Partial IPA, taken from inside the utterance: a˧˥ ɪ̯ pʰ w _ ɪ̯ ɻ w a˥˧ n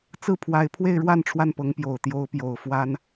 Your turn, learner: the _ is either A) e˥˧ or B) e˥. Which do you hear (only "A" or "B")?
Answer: A